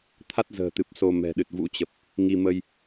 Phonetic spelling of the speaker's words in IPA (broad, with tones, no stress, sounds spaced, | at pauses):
t̪ʰ a˦˥ t̚ z ə̤ː˨˩ t̪ ɨ˨˩ p̚ s o˧ m ɛ̤˨˩ ɗ ɨ˨˩ t̚ v ṵ˧˥ t͡ɕ ə˨˩ p̚ | ŋ i˧ m ə˧ j